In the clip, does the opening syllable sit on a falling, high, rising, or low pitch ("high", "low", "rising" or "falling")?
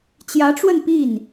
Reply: rising